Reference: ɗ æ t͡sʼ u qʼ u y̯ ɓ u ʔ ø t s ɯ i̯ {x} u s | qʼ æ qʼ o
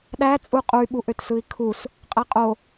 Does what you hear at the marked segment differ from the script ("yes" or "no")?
yes